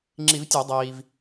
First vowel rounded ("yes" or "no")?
no